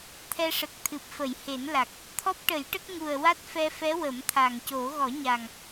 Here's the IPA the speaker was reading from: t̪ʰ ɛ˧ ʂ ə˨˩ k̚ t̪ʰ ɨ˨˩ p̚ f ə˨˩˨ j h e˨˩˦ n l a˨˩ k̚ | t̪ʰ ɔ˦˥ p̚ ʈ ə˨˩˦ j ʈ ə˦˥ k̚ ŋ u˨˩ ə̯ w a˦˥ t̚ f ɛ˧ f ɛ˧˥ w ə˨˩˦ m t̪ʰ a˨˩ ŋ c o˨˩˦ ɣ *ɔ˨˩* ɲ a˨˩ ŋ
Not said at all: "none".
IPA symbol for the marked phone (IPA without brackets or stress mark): ɔ˨˩˦